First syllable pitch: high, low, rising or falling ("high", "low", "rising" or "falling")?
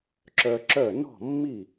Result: high